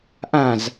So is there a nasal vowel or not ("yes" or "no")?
yes